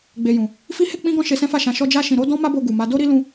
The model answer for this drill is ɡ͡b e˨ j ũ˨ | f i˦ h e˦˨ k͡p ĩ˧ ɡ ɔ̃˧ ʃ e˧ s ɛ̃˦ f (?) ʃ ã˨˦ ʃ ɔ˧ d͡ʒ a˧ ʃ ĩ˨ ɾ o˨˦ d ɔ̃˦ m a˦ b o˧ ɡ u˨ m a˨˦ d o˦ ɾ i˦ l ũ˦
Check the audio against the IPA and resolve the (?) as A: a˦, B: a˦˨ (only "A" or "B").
B